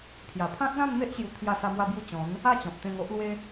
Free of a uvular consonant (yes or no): yes